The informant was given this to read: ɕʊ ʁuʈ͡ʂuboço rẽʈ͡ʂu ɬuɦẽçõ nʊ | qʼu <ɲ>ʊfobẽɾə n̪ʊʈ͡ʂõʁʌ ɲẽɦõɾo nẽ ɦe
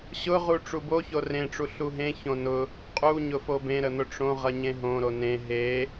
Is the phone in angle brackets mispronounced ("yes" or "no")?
no